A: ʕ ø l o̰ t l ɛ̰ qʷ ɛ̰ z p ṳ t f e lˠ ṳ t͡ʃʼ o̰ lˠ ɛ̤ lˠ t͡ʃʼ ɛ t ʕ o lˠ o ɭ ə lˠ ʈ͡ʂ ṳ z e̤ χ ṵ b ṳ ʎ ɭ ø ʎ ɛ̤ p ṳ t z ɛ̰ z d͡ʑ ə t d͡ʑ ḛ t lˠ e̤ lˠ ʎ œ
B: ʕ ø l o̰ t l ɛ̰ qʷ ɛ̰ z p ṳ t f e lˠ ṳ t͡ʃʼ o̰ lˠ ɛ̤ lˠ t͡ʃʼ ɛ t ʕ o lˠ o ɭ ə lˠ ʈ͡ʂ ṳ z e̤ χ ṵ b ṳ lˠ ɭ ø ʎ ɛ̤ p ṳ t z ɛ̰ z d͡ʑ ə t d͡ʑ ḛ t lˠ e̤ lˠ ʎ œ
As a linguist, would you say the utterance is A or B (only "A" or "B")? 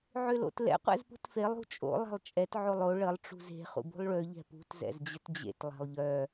B